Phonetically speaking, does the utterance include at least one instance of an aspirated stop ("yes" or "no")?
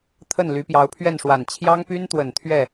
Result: yes